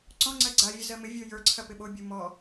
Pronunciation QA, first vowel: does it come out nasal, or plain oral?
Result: nasal